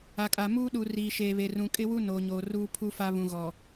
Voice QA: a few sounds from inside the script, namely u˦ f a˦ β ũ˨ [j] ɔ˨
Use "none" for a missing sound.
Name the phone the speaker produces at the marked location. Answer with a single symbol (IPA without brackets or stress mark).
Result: ɣ